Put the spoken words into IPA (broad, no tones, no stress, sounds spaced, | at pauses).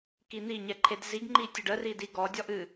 k i n̪ i ɲ ɛ ǃʰ e d z i ɡ ŋ͡ǃ i tʲ ʊ ɖ ə r i d i ɡ ɔ dʲ ɔ ʔ ɨ